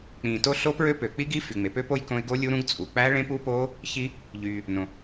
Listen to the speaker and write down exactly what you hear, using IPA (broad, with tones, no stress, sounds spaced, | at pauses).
k͡p ĩː˩ t o˦˥ ɬ o˦˥ p ɹ ø˦˥ p ø˩ k͡p i˦˥ ɡ i˦˥ f y˩ ŋ͡m e˩ p ø˦˥ p o˦˥ j k õ˦˥ ɪ̯ ɡ o˦˥ lʲ u˦˥ ɾ ũ˦˥ ɡ t͡sʼ u˩ k͡p æ˦˥ ɭ ẽ˦˥ p u˦˥ p oː˦˥ | ç i˦˥ | ʎ yː˩ | n õ˩